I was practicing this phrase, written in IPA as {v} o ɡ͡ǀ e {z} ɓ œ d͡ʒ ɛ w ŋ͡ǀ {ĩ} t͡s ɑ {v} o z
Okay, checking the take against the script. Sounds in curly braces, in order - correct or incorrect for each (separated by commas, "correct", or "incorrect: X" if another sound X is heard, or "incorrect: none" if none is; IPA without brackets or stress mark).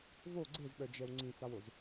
correct, correct, correct, incorrect: w